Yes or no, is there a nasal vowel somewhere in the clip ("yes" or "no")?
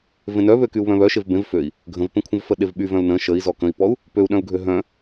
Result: yes